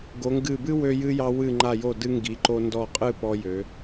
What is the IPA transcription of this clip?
ɡ o˩˧ ŋ ɡ ɨ˧˩ b ɨ˥ w ø˧ j ɨ˧ j ɑ˧ w ɨ˧˩ ŋ͡ǃ a˧˩ j o˧˩ d ɨ˧ ŋ ɡ i˩˧ ǃ o˧ n d ɔ˧˩ qʼ ɨ˥˧ p ɔ˧ j ø˩˧

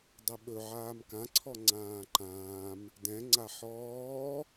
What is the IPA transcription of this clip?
dˤ ɛ ɓ ɵ ʕ aː m k ã ǀʰ ɔ ŋ͡ǀ ãː ǃ ãː m | d ɛ̃ ŋ͡ǀ a ħ ɔː

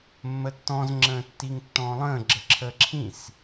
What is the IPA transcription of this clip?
mː ə tː ɔ̃ z ŋ͡ǁ ə̃ː tː i ŋ tː ɔ̃ː lˠ ə̃ː ɡ͡ǁ ə ǁʰ əː ǁʰ ĩ s

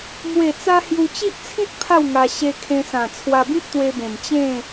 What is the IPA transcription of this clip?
m w e˨˩ t͡s a˧ h j u˧ t͡ɕ i˦ ʔ t͡sʰ ĩ˦ t̚ pʰ a˥˧ w ŋ a˧ ɕ e˧ kʰ ẽ˧ s ã˨˩ t͡sʰ w a˧ b ĩ˦ p̚ t̪ w e˧ b ẽ˨˩ m t͡ɕ ẽ˥˧

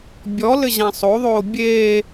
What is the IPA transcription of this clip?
bʲ ɔ l ɘ ʑ ã sˤ o ðˤ oː bʲ eː

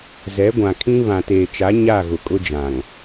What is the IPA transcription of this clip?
z ɛ˨˦ ɡʷ ã˨ kʰ ĩ˦ β ã˨ t eː˨ t͡ʃ a˨˦ ɲ a˦˨ ɣ ʊ˨ kʼ ʊ˦ d͡ʒ ã˨ ŋ

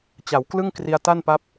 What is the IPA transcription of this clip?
t͡ɕ a˩˦ w k l ɯ˥˩ ŋ k r i˧ a̯ t a˥˩ n p a˦˥ p̚

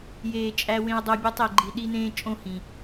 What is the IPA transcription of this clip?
j eː˨ t͡ʃʼ æ˧ w ẽ˧ ʊ̯ dˤ o˧ bʲ o˧ tˤ e˨ ɡ͡ǃ i˨ ɗ i˧ n ẽː˧ t͡ʃʼ õ˦˨ h ĩ˨

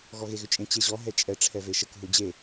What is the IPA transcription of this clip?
ɣ ɔ ɣ e ɣ ʏ t͡ʃʼ ẽ t͡ɕ e ʑ ɔ ɦ ɛ t͡ʃʼ ɛ ʈ͡ʂʰ ɛ v e ʃ ə k ɦ u d͡ʑ e

